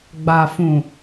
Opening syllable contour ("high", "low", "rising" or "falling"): low